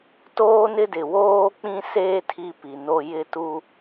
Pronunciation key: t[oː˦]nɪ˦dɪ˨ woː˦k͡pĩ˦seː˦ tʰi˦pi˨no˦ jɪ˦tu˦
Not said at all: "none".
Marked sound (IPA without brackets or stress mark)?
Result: oː˦